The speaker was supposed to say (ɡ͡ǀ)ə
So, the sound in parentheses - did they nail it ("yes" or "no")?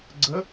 yes